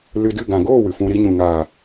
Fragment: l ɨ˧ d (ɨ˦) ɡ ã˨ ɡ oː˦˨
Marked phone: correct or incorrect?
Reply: incorrect